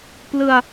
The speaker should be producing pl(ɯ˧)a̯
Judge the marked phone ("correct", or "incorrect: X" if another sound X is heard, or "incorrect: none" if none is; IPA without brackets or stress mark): correct